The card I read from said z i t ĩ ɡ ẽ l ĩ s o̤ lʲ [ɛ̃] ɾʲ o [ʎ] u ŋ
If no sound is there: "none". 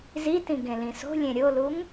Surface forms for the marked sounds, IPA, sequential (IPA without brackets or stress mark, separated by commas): ẽ, l